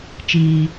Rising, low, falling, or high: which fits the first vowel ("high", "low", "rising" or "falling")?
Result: high